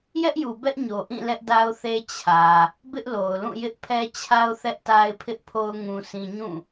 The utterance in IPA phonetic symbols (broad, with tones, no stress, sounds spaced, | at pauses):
j ɛ˦ ʔ j u˨ b ɛ˦ ʔ ɲ o˨ ʔ ĩ˦˨ l ɛ˦ ʔ d a˦ ʊ̯ θ e˦ t͡ɕʰ ä˨ | b ɪ˦ ʔ l o˨ ʊ̯ l ũ˦˨ j ɪ˦ ʔ pʰ ɛ˦ t͡ɕʰ a˦ ʊ̯ θ ɛ˦ ʔ t a˦ ɪ̯ pʰ ɪ˦ ʔ pʰ o˦ ʊ̯ ŋ ũ˦ sʰ ĩ˦ ɲ ũ˦˨